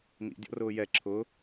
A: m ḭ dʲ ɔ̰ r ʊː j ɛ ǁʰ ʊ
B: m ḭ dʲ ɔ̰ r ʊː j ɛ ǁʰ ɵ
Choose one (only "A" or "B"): A